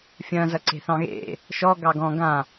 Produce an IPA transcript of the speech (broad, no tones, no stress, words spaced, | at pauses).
fʲɐ̃zɐ ǀe̤θɑ̃ɣḛ | ʃɔ ɡɑɡɔ̃ ɡã